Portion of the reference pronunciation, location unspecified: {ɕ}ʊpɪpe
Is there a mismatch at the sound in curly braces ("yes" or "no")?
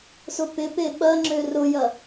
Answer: yes